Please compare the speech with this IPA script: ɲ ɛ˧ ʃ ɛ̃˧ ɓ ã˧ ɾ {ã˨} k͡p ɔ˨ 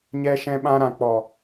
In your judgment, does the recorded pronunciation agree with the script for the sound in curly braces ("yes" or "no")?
yes